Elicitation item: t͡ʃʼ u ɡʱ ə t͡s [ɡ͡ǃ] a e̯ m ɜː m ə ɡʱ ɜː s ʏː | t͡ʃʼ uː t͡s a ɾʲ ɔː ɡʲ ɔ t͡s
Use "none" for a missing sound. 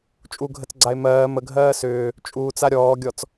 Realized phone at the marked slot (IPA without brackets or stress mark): ɡ͡ǀ